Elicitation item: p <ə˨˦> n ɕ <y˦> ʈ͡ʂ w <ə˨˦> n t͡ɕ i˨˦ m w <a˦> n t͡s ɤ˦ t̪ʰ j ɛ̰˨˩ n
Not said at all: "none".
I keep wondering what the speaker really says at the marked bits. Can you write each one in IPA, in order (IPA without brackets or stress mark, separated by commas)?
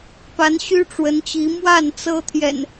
a˨˦, y˦, ə˨˦, a˥˨